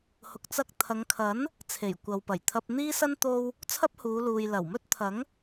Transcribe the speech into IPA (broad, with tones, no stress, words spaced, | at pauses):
hʊ˨k̚t͡sɐ˧k̚t̪ʰɐ˨˧ŋkʰɐ˨˥n | t͡sʰe˨˩jkʷɐ˨w pɐ˨˩jt̪ʰɐ˧p̚ n̪iː˥sɐ˥n t̪o˥w | t͡sʰɐ˥p̚huː˨˧luː˨j lɐ˨˩wmɵ˥t̚t̪ʰɐ˨˥ŋ